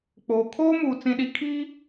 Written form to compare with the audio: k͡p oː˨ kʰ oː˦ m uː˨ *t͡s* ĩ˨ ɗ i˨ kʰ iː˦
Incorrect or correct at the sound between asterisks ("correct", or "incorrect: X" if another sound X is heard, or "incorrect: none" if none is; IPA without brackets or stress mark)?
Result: correct